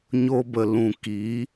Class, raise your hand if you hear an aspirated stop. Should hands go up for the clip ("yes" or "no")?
no